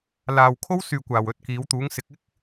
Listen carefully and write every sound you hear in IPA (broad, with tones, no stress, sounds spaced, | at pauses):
l aː˨ w kʰ o˥ w s yː˨ kʷ aː˨˩ w ɵ˨ t̚ k iː˨˥ w t̪ uː˨˥ ŋ s ɪ˨˥ k̚ ɪ˥ k̚